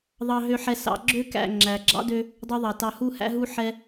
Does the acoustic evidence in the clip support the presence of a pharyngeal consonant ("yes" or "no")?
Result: yes